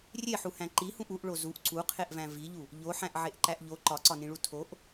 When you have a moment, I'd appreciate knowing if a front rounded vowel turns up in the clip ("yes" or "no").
no